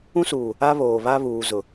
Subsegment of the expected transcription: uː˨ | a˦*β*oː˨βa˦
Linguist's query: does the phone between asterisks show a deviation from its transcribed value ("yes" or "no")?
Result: no